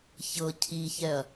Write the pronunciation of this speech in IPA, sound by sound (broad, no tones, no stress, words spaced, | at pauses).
çɤ cʰiçɛɐ̯